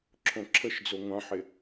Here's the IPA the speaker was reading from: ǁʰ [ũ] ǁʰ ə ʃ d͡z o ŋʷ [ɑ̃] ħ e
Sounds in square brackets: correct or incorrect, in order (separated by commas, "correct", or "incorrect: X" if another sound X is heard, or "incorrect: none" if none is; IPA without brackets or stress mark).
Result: incorrect: õ, correct